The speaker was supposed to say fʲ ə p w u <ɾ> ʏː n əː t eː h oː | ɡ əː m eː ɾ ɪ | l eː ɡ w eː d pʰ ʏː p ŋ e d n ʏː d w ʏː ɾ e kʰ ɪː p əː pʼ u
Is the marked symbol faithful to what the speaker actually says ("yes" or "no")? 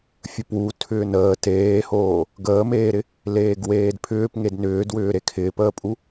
no